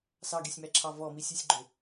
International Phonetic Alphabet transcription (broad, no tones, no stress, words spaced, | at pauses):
sɑɡesʲmæǁʰɑ vɔmisʲʉsʲɡ͡ǃø